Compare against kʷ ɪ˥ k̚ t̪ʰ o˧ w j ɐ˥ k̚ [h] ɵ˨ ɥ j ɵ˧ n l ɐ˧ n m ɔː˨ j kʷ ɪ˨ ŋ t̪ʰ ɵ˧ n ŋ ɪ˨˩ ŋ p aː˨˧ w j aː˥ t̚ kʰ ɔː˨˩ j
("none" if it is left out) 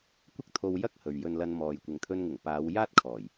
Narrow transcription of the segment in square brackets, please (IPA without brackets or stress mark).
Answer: h